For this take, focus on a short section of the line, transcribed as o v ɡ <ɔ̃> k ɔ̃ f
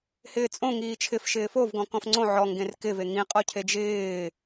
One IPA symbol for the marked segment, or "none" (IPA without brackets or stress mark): ɔ̃